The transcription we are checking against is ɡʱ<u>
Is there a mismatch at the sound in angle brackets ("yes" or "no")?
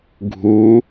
no